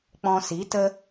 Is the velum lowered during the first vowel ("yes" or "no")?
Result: yes